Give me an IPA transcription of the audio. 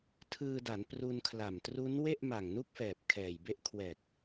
tʰ ɯː˧ d a˩˦ n p r u˧ n kʰ l a˨˩ m t r u˦˥ n w e˥˩ ʔ m a˨˩ ŋ n u˥˩ k̚ f ɛː˨˩ p̚ kʰ ɛː˨˩ j b e˦˥ ʔ kʰ w ɛː˨˩ k̚

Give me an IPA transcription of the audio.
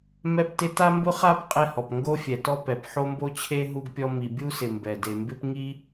m ɛ˥ p t ɪ˥ t a˥ m b ʊ˥ χ a˥ p qʼ ɛ˥ h ɔ˩ p ŋ ɡ o˥ fʲ ɛ˩ t ɔ˥ p ɛ˩ p ħ o˥ m b o˥ t͡ɕʰ e˥ ɦ u˥ ɡ pʲ ɔ˥ m i˩ bʲ u˥ s ɪ˩ m b ɛ˩ d e˩ m b ɪ˥ p ŋ i˥

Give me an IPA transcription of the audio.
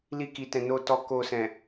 l i˧ k i˨ t ɛ̃˨ n o˨ t ɔ˨ k o˨ s ɛ̃˨

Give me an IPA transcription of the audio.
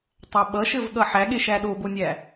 tˤ æ ɓ ʌ ʃ ɘ v ɠ ʌ ħ æ ɠ e ʃ æ ɗ o b o nʲ æ

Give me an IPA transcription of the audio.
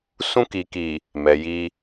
s ũ˧ k i˨ k i˨ | m ɛ˨ j i˧

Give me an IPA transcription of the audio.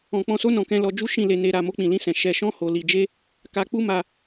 ɔ̃˧ k͡p ɔ̃˧ s o˦ n ɔ̃˧ k ɛ̃˧ l ɔ˧ d͡ʒ u˦ ʃ ĩ˦˨ l e˧ n e˧ ɾ a˧ m o˦ k͡p ĩ˧ l ĩ˦ s ɛ̃˧ ʃ ɛ˧ ʃ ɔ̃˦ h o˧ l i˧ d͡ʒ e˦ | k a˧ k͡p u˦ m a˧

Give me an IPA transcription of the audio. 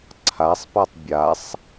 ǀʰ a sˤ p a tˤ bʲ a sˤ

